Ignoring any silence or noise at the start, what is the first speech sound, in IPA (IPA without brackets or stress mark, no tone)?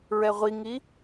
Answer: ɹ